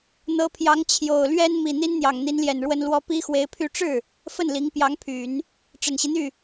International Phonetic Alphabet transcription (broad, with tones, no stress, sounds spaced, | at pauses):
n̪ ɤ˧˥ pʰ j ɑ˧˥ ŋ t͡ɕʰ j o˨˩ ʊ̯ l ɥ ɛ˥ n m i˨˩ n̪ i˥ n n̪ j ɑ˨˩ ŋ n̪ i˧˥ n l j ɛ˨˩ n ɻ w ə˥ n l w ɔ˥ p i˥ x w e˧˥ ɪ̯ pʰ y˥˧ ʈ͡ʂ ɻ̩˥˩ | f ə˥˩ n l i˧˥ ŋ p j ɑ˧˥ ŋ pʰ y˨˩˦ n | ʈ͡ʂ ə˨˩ n ɕ i˦ n̪ y˥˩